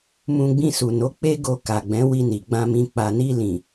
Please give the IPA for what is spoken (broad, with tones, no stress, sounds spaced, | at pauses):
m ũ˧ ɡ͡b ĩ˧ s u˨ n o˨˦ k͡p e˦ ɡ o˧ k a˨ ɡ͡b ɛ̃˨˦ w i˧ n i˨ ɡ͡b ã˧ m ĩ˧ k͡p a˨ n i˧ l ĩ˨